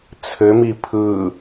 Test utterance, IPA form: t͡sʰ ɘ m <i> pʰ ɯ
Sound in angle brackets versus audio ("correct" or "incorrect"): correct